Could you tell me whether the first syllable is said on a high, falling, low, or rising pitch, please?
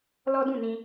high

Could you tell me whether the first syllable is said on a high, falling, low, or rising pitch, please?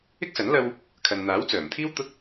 high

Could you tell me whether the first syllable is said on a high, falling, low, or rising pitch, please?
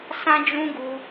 high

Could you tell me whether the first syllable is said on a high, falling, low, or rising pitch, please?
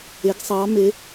rising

